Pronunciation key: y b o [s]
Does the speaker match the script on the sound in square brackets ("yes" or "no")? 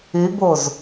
no